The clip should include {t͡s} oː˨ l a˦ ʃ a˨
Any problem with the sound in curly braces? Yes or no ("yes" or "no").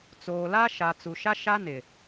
no